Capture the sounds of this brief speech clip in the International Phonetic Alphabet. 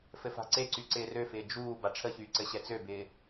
fɘfa̤ǀeǀy ǀɪːrøfɪː d͡ʒuː baʈ͡ʂʰəçyː ǀɘɕɛt͡søbɪː

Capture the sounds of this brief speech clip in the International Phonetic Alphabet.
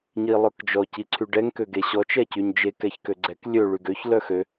ɲilˠœkd͡ʒɔ ciǀʰyɖɛŋ køɡeɕɔ t͡ʃɛcyɲd͡ʒe kɛçkøɡ͡ǀɛk lʲø ɭyɡøç lœxø

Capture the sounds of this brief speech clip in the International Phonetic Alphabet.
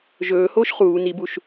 ʒɵːhoːʃ χuː nibuʃ

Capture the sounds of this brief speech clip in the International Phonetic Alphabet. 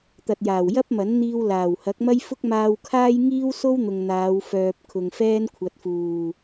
t̪ɐ˨t̚jaː˨˩w jɐ˥p̚mɐ˨˥nn̪iː˧w laː˨˩whɐ˨˥k̚mɐ˥jfʊ˥k̚ maː˧wkʰaː˥j ŋiː˥w so˥wn̪ʊ˨ŋ n̪aː˨˧wfœː˨p̚ kʰʊ˨ŋfɛː˥nkʷʰɐ˨t̚fuː˨˩

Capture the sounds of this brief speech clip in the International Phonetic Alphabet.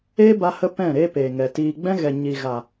eː˦ba˧ hə˦pɛ̃˦˨ ɾeː˧ peː˨ŋɛ˨ tiː˨ɡ͡bɛ̃˦ ɣɛ˨ ɲi˨ɣa˨

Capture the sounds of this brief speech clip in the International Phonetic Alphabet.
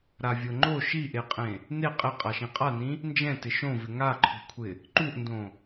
ɾavʲoŋ͡ǃo ʃiʔeqʼẽ | ne qʼɪ qʼaʃĩqʼanĩ | nd͡ʒɛ̃tɪ ʃõvɪ ŋaǃʰo̤kʷʰɪ | ǃuʔndõ

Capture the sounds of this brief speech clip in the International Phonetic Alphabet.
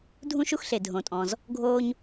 dʱũ˥ʃu˥xɬe˩ dʱõ˩tʼɔ̃˩z | ɡʱoː˥ɲ

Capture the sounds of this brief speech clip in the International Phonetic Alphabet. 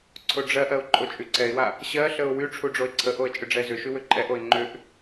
ǀʰoɖ͡ʐɜʔɜʊ̯ ǃʼot͡ʃʼyǀɛɪ̯wa | ɕɜɬəʊ̯ wy ʈ͡ʂʰuɖ͡ʐoɪ̯ǀʰəʔoə̯ t͡ʃʼʏɖ͡ʐɛzʏʃy wʏǃʼɛʔoɪ̯ ŋ͡ǃʏʔ

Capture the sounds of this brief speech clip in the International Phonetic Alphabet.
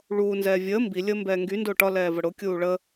ɭuːnzɛː vʲəː mbilʲəː mbɛːŋɡy ndʊːʈɒ lɛːvəɽʊ kʲuːɭə

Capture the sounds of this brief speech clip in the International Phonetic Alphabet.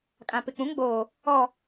kʼã˨pɪ˨k͡pũ˨˦ŋɡ͡boː˨ | ɔ˨

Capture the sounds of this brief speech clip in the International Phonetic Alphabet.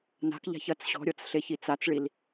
na̤kʎa̤ç ɐt͡s ɕɔ̤ɾʲɔt͡s ɬeçit͡sat͡sɭil

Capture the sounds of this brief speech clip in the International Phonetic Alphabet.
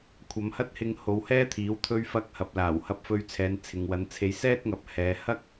kʷʰɐ˨˧mhɐ˥t̚hɪ˧ŋ ho˨˧whɛː˥t̪ʰiː˨˥w t̪ʰɵ˧ɥfɐ˧k̚hɐ˨p̚laː˨˩w hɐ˨˥p̚fɵ˨˧ɥ t͡sʰɛː˨˧nt͡sʰɪ˨ŋwɐ˨˧nt͡sʰe˧j sɛː˥t̚ŋɐ˨p̚ hɛː˨ hɐ˥k̚

